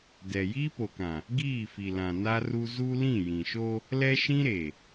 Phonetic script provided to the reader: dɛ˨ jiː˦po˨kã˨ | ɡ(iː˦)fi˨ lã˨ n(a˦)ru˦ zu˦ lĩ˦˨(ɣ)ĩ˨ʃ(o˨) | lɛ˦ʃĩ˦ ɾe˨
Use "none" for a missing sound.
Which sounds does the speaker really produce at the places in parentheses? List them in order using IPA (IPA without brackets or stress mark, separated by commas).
iː˦˨, a˦, j, o˦